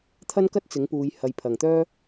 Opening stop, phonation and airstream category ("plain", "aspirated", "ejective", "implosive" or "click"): aspirated